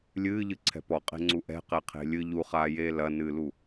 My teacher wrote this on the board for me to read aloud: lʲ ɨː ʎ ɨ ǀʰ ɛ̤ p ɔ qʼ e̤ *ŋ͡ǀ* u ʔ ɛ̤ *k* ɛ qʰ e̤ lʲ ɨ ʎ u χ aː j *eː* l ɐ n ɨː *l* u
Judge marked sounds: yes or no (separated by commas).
yes, no, yes, yes